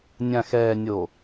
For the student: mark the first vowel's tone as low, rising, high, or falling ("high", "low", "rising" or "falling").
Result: low